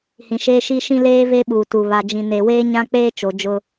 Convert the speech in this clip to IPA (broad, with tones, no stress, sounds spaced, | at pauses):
h ĩ˨ ʃ eː˦ ʃ i˦ ʃ ĩ˦ l eː˦ v e˦ ɓ uː˨ t u˨ β a˨ d͡ʒ ĩ˨ n e˨ w eː˦ ɲ ã˦ k͡p eː˦ t͡ʃ o˨ d͡ʒ ʊ˦